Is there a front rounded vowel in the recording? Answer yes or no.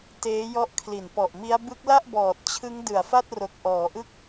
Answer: no